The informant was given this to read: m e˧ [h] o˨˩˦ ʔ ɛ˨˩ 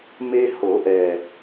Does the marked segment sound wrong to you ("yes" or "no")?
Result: no